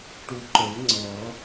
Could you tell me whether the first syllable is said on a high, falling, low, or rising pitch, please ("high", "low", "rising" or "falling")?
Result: low